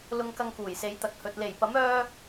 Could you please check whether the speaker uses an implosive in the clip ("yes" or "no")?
no